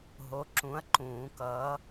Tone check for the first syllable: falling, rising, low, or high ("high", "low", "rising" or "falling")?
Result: rising